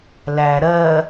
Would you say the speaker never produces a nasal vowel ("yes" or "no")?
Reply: yes